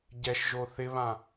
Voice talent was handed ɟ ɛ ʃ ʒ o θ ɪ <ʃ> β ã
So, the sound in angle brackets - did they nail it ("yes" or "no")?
no